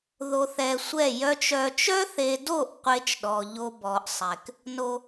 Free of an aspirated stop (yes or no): yes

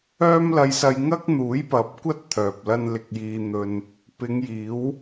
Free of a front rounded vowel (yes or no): no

